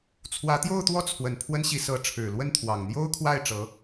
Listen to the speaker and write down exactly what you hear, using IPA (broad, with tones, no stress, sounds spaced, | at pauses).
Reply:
t͡sʰ w ä˧˥ t̪ j o˥˧ ʊ̯ t̪ w ɔ˥˩ t͡sʰ w ə˨˩ n pʰ w ə˥ n ɕ i˧˥ s ɤ˧˥ ʈ͡ʂʰ ɻ̩˨˩ l w ə˥˩ n t̪ʰ w ɑ˨˩ ŋ n̪ j o˥ ʊ̯ kʰ w a˥˩ ɪ̯ ʈ͡ʂ ɤ˧˥